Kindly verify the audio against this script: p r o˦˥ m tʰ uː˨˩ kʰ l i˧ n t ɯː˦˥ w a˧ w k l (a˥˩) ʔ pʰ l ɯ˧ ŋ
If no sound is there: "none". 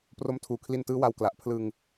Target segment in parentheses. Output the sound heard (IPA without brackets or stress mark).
a˨˩